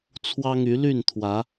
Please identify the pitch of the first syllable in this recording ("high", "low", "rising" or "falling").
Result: high